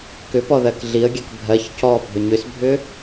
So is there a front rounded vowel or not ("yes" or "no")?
yes